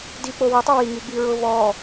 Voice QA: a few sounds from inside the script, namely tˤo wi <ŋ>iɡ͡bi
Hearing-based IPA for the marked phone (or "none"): ŋ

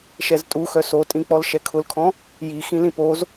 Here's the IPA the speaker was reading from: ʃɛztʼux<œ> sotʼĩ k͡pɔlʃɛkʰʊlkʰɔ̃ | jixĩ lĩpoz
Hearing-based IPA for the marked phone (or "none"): œ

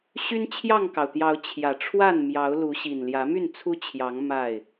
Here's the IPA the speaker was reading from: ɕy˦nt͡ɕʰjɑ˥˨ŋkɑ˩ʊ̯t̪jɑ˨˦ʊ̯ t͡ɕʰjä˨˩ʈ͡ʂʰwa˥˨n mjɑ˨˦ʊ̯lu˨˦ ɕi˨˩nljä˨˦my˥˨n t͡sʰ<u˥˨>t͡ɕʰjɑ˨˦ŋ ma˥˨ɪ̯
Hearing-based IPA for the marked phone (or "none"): u˦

